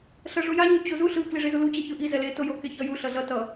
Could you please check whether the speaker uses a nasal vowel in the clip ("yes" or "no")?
no